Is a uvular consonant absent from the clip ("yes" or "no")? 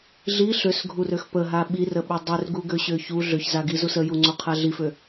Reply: no